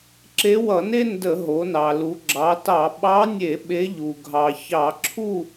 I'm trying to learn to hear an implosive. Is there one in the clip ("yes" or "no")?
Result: yes